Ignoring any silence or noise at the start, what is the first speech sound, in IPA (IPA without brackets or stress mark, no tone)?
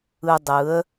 ɯ